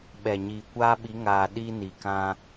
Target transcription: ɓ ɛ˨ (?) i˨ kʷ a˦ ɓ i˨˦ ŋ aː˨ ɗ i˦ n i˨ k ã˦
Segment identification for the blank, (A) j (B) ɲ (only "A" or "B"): B